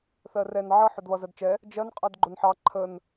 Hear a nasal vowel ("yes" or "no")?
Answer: no